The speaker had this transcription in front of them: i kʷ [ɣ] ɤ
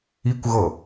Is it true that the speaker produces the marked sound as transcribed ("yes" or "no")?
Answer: yes